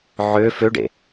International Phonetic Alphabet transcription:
ʕ ø f ø ɖ ḛ

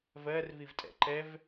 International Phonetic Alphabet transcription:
v ɜ r v i v tʼ ɛ̰ ǃ ɛ v

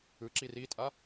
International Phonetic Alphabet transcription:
ɯ ǁ i r i tʼ a

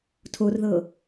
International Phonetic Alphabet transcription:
tʰ o r ð ɤ

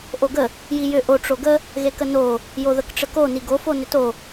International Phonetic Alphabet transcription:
ʔ o ɡ ə | j i j ʏ ʔ o ʈ͡ʂ o ɡ ə | ɣ e k ə n o | j o ð ə k ʈ͡ʂ ə k o n i ɡ o f o n ʏ t o

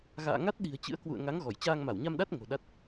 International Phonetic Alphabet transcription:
ɣ a̰ː˧˨ ŋ a˦˥ t̚ ɗ i̤˨˩ ə̯ t͡ɕ ɨ̰˧˥ ə̯ k w ṵ˧˨ ə̯ ŋ a˨˦ ŋ ɣ ɔ˧˩ j t͡ɕ aː˧ ŋ m a˧˩ w ɲ a˧ m ɗ a˦˥ t̚ ŋ o̤˨˩ ɗ a˦˥ t̚

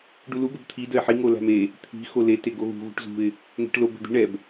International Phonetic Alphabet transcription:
ɖ u l u ɡ ə b t̪ʰ i d ə ɪ̯ ħ i ŋ o l æ̤ m e | t̪ʰ i̤ x o l e t e ɡ o ɣ ṳ ɣ ṳ ʈ z ṳ ɪ̯ | ŋ ɛ̤ ʈ l o b ɛ̤ d̪ i̤ ɳ ɛ b

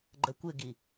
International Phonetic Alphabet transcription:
ɡ͡ǃ ɐ kʷ ɘ ɡ i

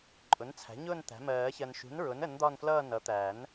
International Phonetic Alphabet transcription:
ǃʼ ʊ˩˥ n t͡sʰ æ̤˩˥ ɲ ʊː˦˨ n t̪ æ̤˩˥ m ɜː˨˩˦ ç ɜ˨ n ʃ ṳ˩˥ n ɹ ʊ˩˥ n ə˩˥ n d̪ ɒ˦˨ n f l ʌː˦˨ n ʌ˩˥ t̪ æ˨˩˦ n

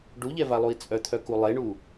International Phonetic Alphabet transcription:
ɖ u ʎ ɛ v a lˠ u i̯ t͡sʼ œ t̪ʰ œ k u lˠ e ɳ u

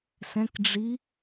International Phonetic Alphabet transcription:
s ɛ̃ k ɖ͡ʐ i

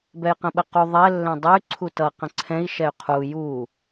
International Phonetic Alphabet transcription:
b ɛ j q ə̃ ɓ ə q u ðˤ ɛ lː ɛ̃ dˤ ɛ y̯ ǀʰ u t ʌ q ə̃ ǀʰ ɛ̃ i̯ ʃ ɛ y̯ qʰ u j u

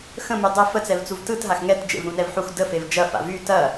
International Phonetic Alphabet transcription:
x ə̃ m y dˤ ə f ə t͡s ɛ v t͡s u v t ɯ t ɦ a x ŋ ɛ t d͡ʒ ḛ v ɾ ũ n ɛ v ħ u x d ə f e v d͡ʒ ɐ f a̰ v y t ɐ

